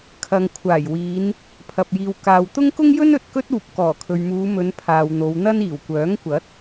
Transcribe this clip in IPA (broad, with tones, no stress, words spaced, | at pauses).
kʰɐ˨ŋkʷʰaː˨˩jwiː˨˧n | pʰɐ˨p̚jiː˨w kaː˨wt̪ʊ˥ŋ kʊ˥ŋjɵ˥n ɵ˨t̚kɵ˥t̚uː˨p̚ kɔː˨˩kʰɵ˨ɥmuː˨˧mɵ˨˧n pʰaː˨wn̪o˨˧wn̪ɐ˥niː˨˩w kʷœː˨˥ŋkʷɐ˨˥t̚